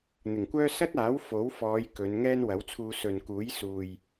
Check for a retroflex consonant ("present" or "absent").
absent